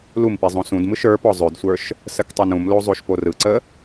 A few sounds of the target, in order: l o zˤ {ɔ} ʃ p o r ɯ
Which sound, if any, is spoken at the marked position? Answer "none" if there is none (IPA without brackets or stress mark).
o